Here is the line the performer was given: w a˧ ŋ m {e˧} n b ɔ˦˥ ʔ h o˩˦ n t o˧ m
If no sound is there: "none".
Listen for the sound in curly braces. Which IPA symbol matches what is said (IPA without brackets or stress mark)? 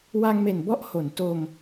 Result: e˨˩